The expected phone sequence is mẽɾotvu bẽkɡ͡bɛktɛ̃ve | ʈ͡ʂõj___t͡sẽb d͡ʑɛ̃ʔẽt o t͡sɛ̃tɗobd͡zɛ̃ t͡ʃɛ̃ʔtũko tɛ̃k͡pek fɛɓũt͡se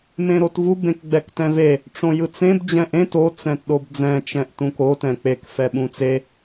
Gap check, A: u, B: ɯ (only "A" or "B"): B